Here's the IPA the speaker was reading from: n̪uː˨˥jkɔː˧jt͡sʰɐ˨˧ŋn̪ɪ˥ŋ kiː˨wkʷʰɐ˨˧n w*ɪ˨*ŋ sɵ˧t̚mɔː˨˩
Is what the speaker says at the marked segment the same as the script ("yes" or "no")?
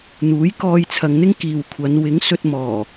no